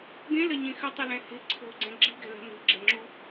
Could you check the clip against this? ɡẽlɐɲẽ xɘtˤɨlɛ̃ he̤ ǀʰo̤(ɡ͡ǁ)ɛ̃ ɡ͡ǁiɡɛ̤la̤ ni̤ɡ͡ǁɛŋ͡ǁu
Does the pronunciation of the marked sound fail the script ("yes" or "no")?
yes